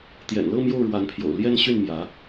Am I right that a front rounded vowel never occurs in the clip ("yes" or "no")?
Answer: no